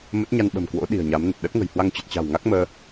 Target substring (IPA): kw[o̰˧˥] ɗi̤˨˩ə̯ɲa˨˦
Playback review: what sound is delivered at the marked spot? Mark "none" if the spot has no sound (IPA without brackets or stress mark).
o̰˧˥